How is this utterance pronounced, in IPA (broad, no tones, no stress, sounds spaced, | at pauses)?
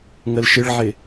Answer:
ŋ ə l ʃ ɪ ɭ ʕ ɪ